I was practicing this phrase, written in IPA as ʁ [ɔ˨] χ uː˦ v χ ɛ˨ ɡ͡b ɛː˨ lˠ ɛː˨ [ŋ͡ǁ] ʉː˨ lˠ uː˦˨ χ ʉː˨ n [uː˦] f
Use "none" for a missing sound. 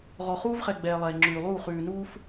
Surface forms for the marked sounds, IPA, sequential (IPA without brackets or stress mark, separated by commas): ɔ˨, ŋ͡ǁ, uː˦